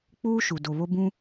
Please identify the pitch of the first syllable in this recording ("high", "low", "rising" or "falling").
high